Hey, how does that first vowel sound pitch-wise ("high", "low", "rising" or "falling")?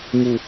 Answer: low